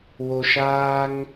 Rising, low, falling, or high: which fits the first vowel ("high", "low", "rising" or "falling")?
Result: low